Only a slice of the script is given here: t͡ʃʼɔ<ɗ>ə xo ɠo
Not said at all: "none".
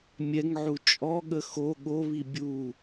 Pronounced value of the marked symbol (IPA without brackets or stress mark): ɠ